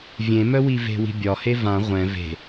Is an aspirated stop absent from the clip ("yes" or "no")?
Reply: yes